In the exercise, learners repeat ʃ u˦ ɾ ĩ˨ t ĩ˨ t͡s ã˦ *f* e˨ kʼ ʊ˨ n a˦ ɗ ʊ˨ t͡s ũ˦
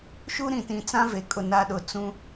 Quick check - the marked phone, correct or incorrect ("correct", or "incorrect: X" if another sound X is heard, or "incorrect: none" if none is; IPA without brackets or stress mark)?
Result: incorrect: v